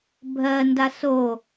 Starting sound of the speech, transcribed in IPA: bʱ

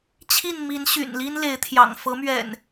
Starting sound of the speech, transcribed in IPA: t͡ɕʰ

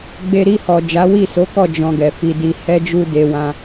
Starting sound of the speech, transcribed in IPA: ɡ͡b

